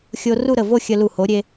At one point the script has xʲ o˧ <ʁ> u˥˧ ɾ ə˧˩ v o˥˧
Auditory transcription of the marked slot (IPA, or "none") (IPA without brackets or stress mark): r